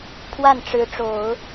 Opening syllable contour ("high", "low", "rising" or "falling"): falling